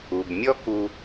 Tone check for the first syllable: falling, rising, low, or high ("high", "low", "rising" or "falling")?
low